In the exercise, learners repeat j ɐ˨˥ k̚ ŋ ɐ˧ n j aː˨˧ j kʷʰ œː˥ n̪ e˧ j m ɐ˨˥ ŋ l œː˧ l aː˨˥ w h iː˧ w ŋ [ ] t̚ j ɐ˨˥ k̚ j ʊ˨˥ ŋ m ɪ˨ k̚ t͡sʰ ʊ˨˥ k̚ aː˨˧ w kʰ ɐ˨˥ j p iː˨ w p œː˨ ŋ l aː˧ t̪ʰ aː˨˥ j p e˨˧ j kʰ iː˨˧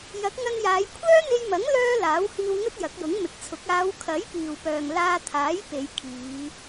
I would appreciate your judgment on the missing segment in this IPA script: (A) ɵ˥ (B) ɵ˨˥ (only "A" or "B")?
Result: A